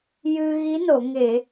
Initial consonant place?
palatal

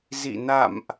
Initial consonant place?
alveolar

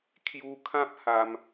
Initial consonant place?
velar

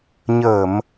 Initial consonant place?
palatal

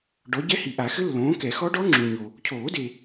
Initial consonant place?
retroflex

